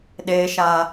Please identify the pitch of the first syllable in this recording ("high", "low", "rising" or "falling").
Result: low